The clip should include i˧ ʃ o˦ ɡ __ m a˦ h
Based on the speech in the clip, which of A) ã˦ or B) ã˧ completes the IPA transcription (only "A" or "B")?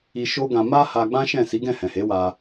B